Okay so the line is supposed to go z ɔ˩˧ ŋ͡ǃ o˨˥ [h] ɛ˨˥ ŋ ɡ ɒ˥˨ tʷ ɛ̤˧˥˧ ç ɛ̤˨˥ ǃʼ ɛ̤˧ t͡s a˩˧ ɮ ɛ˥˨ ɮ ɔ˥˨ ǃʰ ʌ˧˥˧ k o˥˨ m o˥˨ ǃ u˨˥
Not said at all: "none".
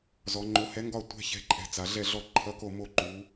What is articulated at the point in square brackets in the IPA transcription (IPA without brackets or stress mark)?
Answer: h